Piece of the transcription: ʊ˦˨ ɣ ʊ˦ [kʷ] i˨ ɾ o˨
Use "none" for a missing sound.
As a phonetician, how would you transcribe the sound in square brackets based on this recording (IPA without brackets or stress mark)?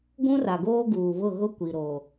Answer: kʷ